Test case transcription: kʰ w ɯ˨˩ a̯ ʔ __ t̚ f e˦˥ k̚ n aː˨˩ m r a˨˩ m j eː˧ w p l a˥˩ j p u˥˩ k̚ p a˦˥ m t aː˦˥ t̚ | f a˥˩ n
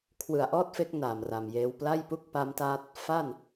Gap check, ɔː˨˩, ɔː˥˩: ɔː˥˩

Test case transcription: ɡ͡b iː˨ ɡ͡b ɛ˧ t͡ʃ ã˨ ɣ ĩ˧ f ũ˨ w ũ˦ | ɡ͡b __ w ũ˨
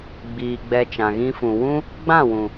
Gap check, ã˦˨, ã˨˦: ã˦˨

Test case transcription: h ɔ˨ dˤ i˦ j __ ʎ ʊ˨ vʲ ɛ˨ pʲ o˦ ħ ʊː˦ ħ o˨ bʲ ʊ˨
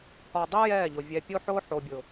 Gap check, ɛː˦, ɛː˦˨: ɛː˦˨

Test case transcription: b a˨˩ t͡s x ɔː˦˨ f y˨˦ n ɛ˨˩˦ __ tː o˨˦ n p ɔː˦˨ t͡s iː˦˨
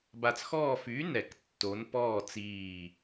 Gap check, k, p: k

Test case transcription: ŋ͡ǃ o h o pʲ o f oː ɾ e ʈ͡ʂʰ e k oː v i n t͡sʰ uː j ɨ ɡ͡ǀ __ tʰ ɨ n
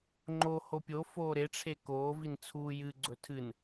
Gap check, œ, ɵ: ɵ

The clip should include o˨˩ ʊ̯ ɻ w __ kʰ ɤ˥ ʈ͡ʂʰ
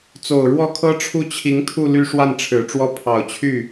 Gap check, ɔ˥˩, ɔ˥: ɔ˥˩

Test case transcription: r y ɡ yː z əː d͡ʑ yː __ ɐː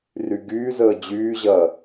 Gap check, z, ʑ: ʑ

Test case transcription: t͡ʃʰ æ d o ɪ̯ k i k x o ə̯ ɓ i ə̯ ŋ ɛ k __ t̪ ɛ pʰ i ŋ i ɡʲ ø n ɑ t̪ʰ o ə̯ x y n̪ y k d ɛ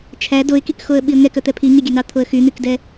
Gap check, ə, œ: œ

